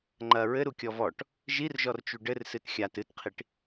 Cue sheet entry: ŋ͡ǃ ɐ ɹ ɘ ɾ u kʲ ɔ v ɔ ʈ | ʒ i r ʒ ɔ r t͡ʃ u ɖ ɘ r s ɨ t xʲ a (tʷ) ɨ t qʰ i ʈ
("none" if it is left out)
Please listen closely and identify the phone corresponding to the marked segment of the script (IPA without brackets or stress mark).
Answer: t